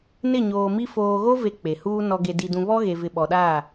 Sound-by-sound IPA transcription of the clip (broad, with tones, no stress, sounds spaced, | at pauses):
n ɪ˦˨ ɲ oː˨ m i˦ f oː˨ ɣ o˦ v e˨ k͡p e˨ h uː˦ n ɔ˨ ɡ e˨ d i˨ d ũ˨ β ɔ˦ ɣ e˨ v ɪ˨ ɓ ɔ˨ ɗ aː˦˨